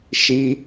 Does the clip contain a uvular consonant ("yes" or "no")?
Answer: no